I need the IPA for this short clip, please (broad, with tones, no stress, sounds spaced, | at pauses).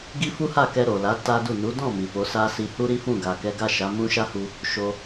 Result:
ɡ i˦ f u˦ h a˦˨ k ɛ˧ ɾ o˨ l a˨˦ t a˦ d u˦˨ n u˨˦ d ɔ̃˦˨ m i˨ f o˨˦ s a˦ s i˧ h u˦ ɾ i˦ f ũ˦˨ ɡ a˨ k ɛ˨˦ ɡ a˦˨ ʃ a˨˦ m ũ˦ ʃ a˦ h u˧ | ʃ o˧